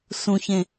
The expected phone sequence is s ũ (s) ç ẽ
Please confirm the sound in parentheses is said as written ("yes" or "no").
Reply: no